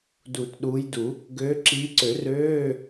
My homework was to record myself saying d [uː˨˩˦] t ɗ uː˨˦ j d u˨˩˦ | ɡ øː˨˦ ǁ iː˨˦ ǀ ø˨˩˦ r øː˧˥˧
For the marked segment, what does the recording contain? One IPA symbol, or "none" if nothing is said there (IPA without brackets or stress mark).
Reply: uː˨˩˦